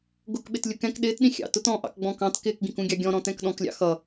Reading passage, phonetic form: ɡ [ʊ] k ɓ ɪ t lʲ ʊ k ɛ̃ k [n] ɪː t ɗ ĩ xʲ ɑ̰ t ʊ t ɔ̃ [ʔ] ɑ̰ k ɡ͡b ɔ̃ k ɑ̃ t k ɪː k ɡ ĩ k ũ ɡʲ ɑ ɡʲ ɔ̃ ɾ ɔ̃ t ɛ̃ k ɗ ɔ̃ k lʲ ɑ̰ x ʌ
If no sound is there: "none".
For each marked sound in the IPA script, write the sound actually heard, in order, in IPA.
ʊ, ɗ, ʔ

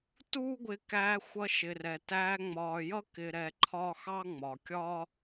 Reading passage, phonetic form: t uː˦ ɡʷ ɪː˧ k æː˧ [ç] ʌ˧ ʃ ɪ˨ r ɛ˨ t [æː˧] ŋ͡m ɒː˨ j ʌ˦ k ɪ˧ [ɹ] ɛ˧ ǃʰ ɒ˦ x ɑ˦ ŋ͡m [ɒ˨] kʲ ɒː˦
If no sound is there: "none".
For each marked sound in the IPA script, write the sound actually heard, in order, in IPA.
xʷ, æː˧, ɾ, ɒ˨

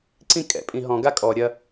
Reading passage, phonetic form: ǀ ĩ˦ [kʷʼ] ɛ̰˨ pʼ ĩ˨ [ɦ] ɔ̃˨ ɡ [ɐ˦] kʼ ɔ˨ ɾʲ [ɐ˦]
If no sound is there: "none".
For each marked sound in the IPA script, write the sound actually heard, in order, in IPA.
kʼ, ɦ, a˦, ɐ˦

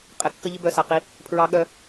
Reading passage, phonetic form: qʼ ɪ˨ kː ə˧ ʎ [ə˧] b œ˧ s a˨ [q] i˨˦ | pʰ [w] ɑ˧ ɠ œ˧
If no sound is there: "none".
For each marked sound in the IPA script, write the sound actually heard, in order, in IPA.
ɪ˧, q, ɹ

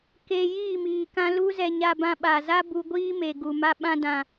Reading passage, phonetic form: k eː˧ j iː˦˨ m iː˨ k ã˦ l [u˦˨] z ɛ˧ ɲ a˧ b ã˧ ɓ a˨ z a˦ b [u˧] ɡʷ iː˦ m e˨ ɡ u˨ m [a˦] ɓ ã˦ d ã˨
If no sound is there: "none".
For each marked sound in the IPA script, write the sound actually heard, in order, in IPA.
u˦, u˧, a˦

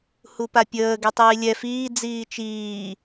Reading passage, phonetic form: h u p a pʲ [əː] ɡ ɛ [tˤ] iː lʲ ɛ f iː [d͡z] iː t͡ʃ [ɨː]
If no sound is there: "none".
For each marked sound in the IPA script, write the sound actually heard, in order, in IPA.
əː, tˤ, d͡z, iː

